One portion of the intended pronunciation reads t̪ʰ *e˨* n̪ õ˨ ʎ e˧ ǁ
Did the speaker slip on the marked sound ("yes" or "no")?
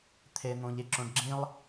no